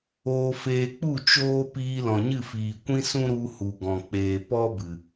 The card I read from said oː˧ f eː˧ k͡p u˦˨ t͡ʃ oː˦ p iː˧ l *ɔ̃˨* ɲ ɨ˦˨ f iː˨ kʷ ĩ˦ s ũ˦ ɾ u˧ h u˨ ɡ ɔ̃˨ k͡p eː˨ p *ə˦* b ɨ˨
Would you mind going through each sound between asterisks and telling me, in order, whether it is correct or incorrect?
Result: correct, incorrect

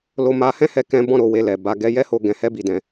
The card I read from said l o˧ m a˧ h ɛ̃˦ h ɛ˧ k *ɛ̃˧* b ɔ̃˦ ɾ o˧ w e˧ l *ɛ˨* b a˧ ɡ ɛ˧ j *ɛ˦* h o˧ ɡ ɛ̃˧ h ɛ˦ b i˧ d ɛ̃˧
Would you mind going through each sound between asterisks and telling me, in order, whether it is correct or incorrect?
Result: correct, correct, correct

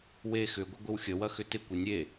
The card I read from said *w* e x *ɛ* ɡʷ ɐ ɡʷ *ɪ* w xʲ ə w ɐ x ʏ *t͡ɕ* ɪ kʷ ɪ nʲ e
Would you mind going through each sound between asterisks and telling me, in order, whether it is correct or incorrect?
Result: correct, incorrect, correct, incorrect

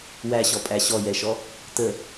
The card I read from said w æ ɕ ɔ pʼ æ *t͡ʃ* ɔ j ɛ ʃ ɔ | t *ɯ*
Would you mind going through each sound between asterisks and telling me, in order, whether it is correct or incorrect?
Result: incorrect, incorrect

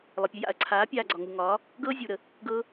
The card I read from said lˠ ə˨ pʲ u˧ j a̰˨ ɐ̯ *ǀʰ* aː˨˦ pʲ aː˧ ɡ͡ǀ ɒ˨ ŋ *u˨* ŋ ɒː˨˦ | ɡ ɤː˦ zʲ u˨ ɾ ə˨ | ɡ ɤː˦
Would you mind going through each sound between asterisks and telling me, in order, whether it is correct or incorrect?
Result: correct, correct

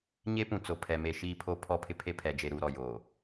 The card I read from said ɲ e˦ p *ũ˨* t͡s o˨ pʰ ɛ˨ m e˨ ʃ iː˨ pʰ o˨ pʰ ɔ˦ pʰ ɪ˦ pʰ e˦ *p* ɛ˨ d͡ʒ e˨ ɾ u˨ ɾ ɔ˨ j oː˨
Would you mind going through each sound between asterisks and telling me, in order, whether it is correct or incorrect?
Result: correct, incorrect

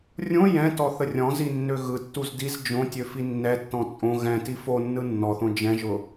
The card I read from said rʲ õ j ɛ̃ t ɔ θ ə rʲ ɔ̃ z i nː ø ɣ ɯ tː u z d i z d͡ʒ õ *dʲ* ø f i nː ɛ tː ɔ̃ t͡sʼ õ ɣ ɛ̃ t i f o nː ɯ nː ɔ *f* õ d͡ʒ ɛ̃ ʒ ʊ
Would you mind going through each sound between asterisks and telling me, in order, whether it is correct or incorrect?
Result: incorrect, incorrect

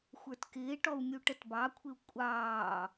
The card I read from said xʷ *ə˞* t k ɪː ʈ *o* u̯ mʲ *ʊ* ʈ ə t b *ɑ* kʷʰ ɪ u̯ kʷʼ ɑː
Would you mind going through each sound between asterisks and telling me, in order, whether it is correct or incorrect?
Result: correct, incorrect, incorrect, correct

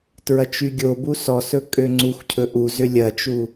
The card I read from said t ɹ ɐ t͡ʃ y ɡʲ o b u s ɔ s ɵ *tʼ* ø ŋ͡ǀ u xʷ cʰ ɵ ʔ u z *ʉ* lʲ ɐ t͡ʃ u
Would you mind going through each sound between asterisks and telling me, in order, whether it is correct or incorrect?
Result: incorrect, incorrect

